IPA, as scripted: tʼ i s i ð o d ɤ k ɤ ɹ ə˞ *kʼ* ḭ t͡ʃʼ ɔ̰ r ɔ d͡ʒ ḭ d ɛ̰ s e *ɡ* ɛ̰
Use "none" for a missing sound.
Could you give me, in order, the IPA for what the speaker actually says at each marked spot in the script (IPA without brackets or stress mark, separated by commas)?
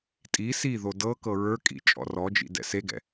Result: kʼ, ɡ